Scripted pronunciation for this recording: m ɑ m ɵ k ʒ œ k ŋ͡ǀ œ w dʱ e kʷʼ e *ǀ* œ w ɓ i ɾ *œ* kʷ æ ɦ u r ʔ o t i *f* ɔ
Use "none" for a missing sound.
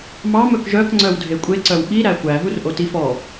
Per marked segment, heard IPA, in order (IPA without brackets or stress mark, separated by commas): ǀ, æ, f